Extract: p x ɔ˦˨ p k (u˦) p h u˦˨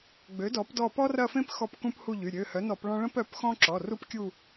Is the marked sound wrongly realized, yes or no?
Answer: yes